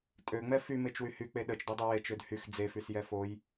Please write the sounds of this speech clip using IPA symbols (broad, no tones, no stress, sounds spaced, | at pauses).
tʼ ø ŋ͡m ɛ f y m e t͡ʃ w y h y k͡p e ɗ ə t͡ʃ d o dˤ e w e t͡ʃ ø d h y x d͡z e f y s j ɛ f o j